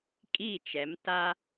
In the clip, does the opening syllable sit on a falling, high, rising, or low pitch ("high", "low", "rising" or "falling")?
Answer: falling